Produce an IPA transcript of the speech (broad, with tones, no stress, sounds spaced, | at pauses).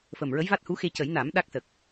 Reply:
f ə˨˩ m ɹ ə˧˥ j v a˦˥ t̚ h u˧˥ x e˧ c ə˨˩˦ j n a˨˩˦ m ɗ a˦˥ k̚ s ə˨˩ k̚